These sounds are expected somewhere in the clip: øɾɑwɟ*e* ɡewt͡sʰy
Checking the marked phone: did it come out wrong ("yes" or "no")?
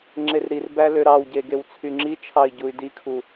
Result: no